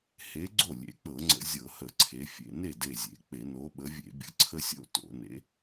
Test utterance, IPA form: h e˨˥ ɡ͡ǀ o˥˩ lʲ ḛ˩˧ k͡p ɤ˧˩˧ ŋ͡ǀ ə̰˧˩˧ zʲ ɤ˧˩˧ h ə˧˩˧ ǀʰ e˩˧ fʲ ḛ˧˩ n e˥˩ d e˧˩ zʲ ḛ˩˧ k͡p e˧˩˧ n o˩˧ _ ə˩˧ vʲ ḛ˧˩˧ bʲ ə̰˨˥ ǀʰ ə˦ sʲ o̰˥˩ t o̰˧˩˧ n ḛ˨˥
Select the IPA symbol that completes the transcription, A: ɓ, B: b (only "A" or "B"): A